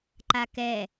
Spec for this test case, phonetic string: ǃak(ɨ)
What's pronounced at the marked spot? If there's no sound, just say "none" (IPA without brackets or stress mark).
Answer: ɛ